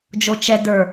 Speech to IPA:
d͡ʒ o t͡ʃ ɛ d ə˞

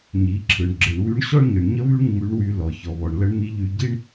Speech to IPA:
ɲ i˩˧ ǁʰ ɯ˩ ɳ ɡ͡ǁ ɯ˩ ɳ w y˧˥ ɳ ɕ ɔ˥ ɳ ɲ ɯ˩ ɳ ɲ ə˥ β y˥ ɳ ŋ͡m y˧˥ ɳ w y˧ l ɔ˩ ç ɔ˩ β ɔ˩ ɳ l ə˧˥ ɳ n̪ i˧˥ ʎ y˧ ɟ i˥ ɳ

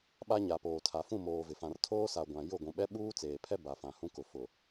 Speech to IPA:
ɓ a˦ ɲ a˨ p oː˨ tʰ a˨ f ũ˦˨ m oː˨ v ɪ˨ f ã˨ r tʰ oː˦ s a˨ ɡʷ ã˨ j ʊ˦˨ ɡʷ ũ˨ ɓ ɛ˦ ɓ uː˦ t͡s eː˨ pʰ ɛ˦ b a˨ f ã˨ h ũ˦ k ʊ˨ f ʊ˨

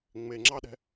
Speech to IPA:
ŋ͡m e ŋ͡ǁ ɑ ɗ ɛ̤

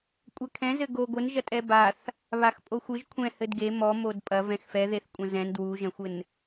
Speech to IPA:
kʷʼ ɛ kʰ ɛ̃ z ɘ ɡ o ɡʷ ɘ n ʒ ɐ tʼ ɛ b a θ | β a x pʼ o xʷ ɨ ʒ kʷʰ ɛ̃ h ɘ d ɡ e m ɔ m o d pʼ ɐ v ɛ̃ x f ɛ ð e θ kʷʼ ɐ̃ z ɛ̃ n d w u ʒ ɐ̃ xʷ ɘ n

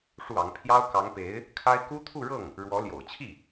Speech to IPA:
ʂ u˥˩ ɑ˧˥ ŋ pʰ j ɑ˥ ʊ̯ k ɑ˧˥ ŋ p e˧˥ ɪ̯ | kʰ a˥ ɪ̯ k u˥ t̪ʰ u˥˧ ɻ ɤ˥˩ ŋ | ɻ w ɔ˧˥ l j o̰˨˩ ʊ̯ t͡ɕʰ i˥˩

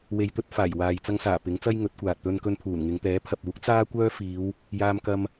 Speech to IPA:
w e˧ j t̪ ɵ˥ t̚ f aː˨˩ j w aː˨ j t͡s ɐ˧ ŋ s aː˨˩ p ɪ˨˥ ŋ t͡s ɐ˥ j ŋ ɵ˨˥ t̚ kʷ aː˨ t̚ t̪ ɵ˧ n k ɵ˧ n pʰ uː˨˩ n ŋ ɪ˨˧ ŋ t̪ ɛː˨˥ pʰ ɐ˨ p̚ uː˨˥ k̚ t͡s aː˥ kʷ œː˥ f iː˨˧ w | j aː˧ m k ɐ˧ m

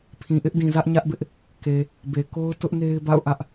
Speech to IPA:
pʰ ĩ˨ ʔ ɪ˦ ʔ d ĩ˨ z ä˦ ʔ ɲ ä˦ ʔ b ɪ˦ ʔ | k e˨ | b e˨ k o˦ ʊ̯ t ʊ˦ ʔ n e˦ ɪ̯ b a̰˦˨ ʊ̯ ʔ ä˦ ʔ

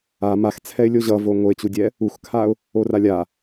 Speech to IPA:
a m a x t͡sʰ ɛ ɪ̯ lʲ o ʑ ʌ v o ŋ o ɪ̯ t͡ɕ u dʲ ɛ | u x kʰ a ʊ̯ | o r a lʲ a

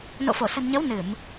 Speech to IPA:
n o̰˧˨ f o˧˩ s ə̤˨˩ n ɲ ə˨˦ w n ɨ˧˩˨ m

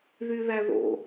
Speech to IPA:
ð y ð æ ð o̰

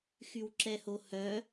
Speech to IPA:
x y w ǁ ɛ h o h œ

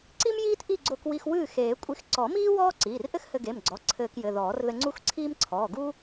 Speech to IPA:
ǀ i˥ m j iː˥ t ʔ i˥˨ ɡ͡ǀ o˧ k w i˧ x w ɨː˥˨ x eː˨˩˦ kʷʼ i˧ x ǀ ɔ˨˩˦ m iː˥ w ɔː˥ ǀ iː˩˧˩ r ʔ ɘ˥ x h ɘ˧ ɡ e˩˧˩ m ɡ͡ǀ ɔ˩˧˩ ǀʰ ɘː˧ k j ɘ˩˧˩ ð ɔː˨˩˦ r ð ɘ˧ ŋ͡ǀ u˥˨ x ǀʰ iː˥ m ǀʰ ɔː˩˧˩ ɡ uː˥

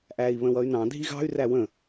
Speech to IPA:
ʔ æː i̯ β ə̃ w ʌ y̯ n ɑ̃ dʱ i ɣ ɑ̤ y̯ r æ w ə̃

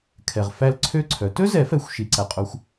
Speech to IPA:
kʰ ɛ˨ ʁ f æ˦˨ l ǀʰ ø˦˥ ǀʰ œ˩˥ t ɵ˦˥ z ɛ˨˩˦ f ɛ˨˩˦ xʷ ʃ i˨˩˦ ǀ æ˨ qʼ o˦˥ xʷ

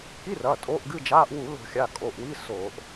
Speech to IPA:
k i˧˥˧ r ɐː˩˧˩ tʼ o˧˥˧ ʔ ɡ ɨ˧˥˧ d͡ʒ aː˧˥˧ ʔ w u˧˩˧ l o̤˧˩˧ xʲ a˩˧˩ kʼ o˩˧˩ ʔ w i˧˥˧ s oː˧˩˧ ʔ

